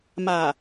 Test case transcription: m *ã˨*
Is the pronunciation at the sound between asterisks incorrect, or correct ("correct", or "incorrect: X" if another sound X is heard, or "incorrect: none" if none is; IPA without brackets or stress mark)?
incorrect: a˨